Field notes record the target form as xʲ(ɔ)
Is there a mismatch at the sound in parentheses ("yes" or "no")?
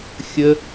yes